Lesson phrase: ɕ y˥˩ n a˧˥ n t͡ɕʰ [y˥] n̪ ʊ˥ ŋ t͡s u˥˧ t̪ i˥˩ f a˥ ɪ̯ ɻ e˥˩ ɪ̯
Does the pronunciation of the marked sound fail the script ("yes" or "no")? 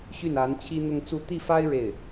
yes